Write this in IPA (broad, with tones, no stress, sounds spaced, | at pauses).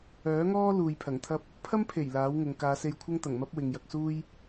œː˨˥ ŋ ɔː˥ l uː˨ j pʰ ɐ˨˩ ŋ t̪ʰ ɐ˥ p̚ | pʰ ɐ˥ m pʰ e˨˩ j l aː˨˥ w ŋ ʊ˨ ŋ k aː˨˧ s e˧ j kʷʰ ɐ˥ ŋ t̪ ɐ˨˩ ŋ m ɐ˥ p̚ w ɪ˨ ŋ j ɐ˧ k̚ s uː˥ j